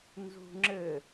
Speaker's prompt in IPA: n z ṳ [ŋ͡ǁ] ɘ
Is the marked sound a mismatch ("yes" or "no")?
no